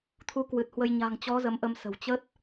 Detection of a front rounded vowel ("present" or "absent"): absent